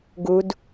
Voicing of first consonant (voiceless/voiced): voiced